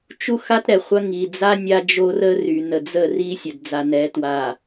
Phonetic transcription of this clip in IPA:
t͡ʃ u˦ x a˦ t ɾ ɛ˨ χʷ ɐ˦ ŋ i˨ d͡z a˦ nʲ a˦ d͡ʒ o˦ r ə˦ r y˨ n ə˨ d͡z ə˦˨ r i˦ sʲ ɐ˨ d d͡z a˨ n ɛ˨˦ t w a˨

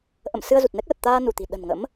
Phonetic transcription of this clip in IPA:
ʔ ə̰˧˨ m s ɨ˧ ə̯ z u˨˩ t̚ n ɛ˦˥ k̚ l ə˨˩ t̚ t̪ aː˧ n u˧˩ t̪ i̤˨˩ ɗ ə̤˨˩ n ŋ ə̰˧˥ m

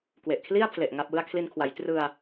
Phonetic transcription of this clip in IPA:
k w e˨˩ ʔ kʰ l i˥˩ a̯ pʰ l e˨˩ ʔ ŋ a˥˩ p̚ w ɯ˥˩ a̯ kʰ l i˧ n kʰ w a˩˦ j t r ɯ˧ a̯

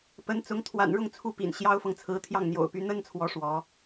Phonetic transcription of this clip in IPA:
p ə˧˥ n t͡s ʊ˧˥ ŋ t̪ʰ w a̰˨˩ n ɻ ʊ˥˧ ŋ t͡sʰ u˥˩ p ḭ˨˩ n ɕ j ɑ˥ ʊ̯ f ɤ˨ ŋ t͡sʰ ɹ̩˧˥ t̪ʰ j ɑ˥˩ ŋ n̪ j o̰˨˩ ʊ̯ p y˧˥ n̪ ə˥ n t͡sʰ w ɔ˧˥ ʂ w ɔ˧˥

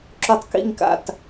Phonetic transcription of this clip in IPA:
ǁ o˧ tˤ k ḭ˥˩ ŋ k a̰˥˩ t

